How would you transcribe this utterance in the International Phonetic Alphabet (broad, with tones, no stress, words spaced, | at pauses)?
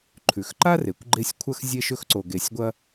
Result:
ǃʰʉ˩xǃa˥ re˩kʷɡ͡ǃe˦sʲkʷʰɐ˥x zʲe˦ʃɵ˦xǀo˨ɡe˨sʲ ɡʷɐ˦